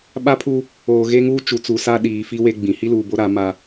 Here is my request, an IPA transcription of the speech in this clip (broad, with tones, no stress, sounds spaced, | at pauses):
ɓ a˦ pʰ u˦ | oː˨ ɣ e˦ ŋ uː˦ t͡ʃ u˨ t͡s u˨ s a˦ ɗ iː˨ f i˦ w e˦ ɡ͡b ĩ˨ h i˦ l uː˨ b o˦ ɾ a˨˦ m a˦